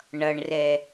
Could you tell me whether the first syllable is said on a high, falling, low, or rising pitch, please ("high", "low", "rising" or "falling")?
low